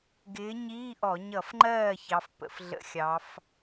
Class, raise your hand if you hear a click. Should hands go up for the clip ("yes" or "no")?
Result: yes